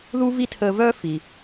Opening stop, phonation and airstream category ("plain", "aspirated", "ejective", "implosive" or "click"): aspirated